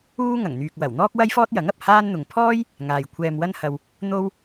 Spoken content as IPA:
uː˥ ŋ ɐ˨˩ ŋ n̪ yː˨ k̚ w ɐ˨˩ w n̪ ɔː˥ k̚ w ɐ˥ j f ɔː˥ t̚ j ɐ˨˥ ŋ ɐ˨ p̚ h aː˥ n n̪ ʊ˨ ŋ pʰ ɔː˥ j | ŋ aː˨ j kʷʰ ɛː˧ m w ɐ˥ n h ɐ˧ w | n̪ o˥ w

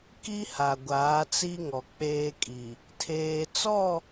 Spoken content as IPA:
k i˦ h a˨ ɡʷ aː˨˦ t͡s i˦ ŋ ɔ˨ k͡p eː˦ kʼ i˨ | tʰ eː˦ t͡s ɔ˦˨

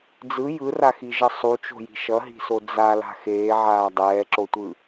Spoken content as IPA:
d͡z ɯ j ɯ r a x i ʒ ʌ sˤ u t͡ʃ o̤ j i̤ ʃ ʌ ɦ i̤ s o d͡z a l a̤ x eː ʕ aː dˤ ɛː ǁ o tʷ ɯ

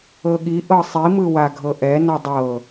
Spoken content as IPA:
ɤ ɠ i ʔ ɤ sˤ i m ɯ w a ɡʱ ɤ ʔ ɛ n ɔ dˤ ɤ

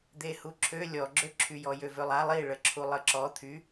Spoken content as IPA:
d̪ e h u ǁʰ ø lʲ ɔ ɡ͡ǁ ø ǁʰ y j ɔ j ø v ø lˠ a lˠ i ɭ ə ǁʰ u lˠ ə ǁ ɔ t̪ʰ y

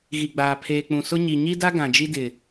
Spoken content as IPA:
ɣ i˨ ɡ͡b aː˨ pʰ eː˨ k͡p ũ˨ s ʊ˦ ɲ i˨ ɲ i˦ d a˦ ɡ ã˨ d͡ʒ i˦ d ɪ˨

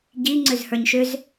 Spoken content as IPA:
ɟ i ŋ͡ǀ ø z h ə˞ ɲ ʃ ʏ z

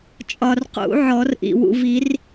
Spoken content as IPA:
t͡ʃʼ ɒ˨ r q ṵ˨˩˦ ʕ ɔ˨˩˦ r ʔ ḭ˨ w ṵ˨ v i˨˩˦ r

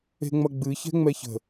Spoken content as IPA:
e̤ ŋ͡m ɐ ɡ͡b ɨ ç ɛ̤ ŋ͡m ɛ ç ə̤

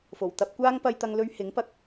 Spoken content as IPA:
f o˨˩ w t̪ ɐ˥ p̚ kʷ aː˥ ŋ p ɐ˧ j t̪ ɐ˧ ŋ l ɵ˧ ɥ h ɪ˨˥ ŋ p ɐ˧ k̚

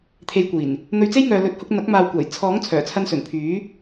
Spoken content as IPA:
t̪ʰ e˧ j kʷ iː˨˩ n | n̪ ɵ˧ ɥ t͡s e˥ j ŋ œː˨ l ɵ˨˥ t̚ h ʊ˧ k̚ n̪ ɐ˨˥ k̚ m aː˨ w kʷ aː˨˩ j t͡sʰ ɔː˨˥ ŋ t͡sʰ œː˨˩ t͡sʰ ɐ˧ n s ɵ˨˩ n pʰ yː˨˥

